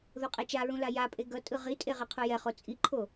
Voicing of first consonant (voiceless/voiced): voiced